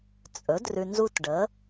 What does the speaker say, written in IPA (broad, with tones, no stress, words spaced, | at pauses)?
t͡sʼɵ˩˥drʉ˨ nzu˦tɖə˩˥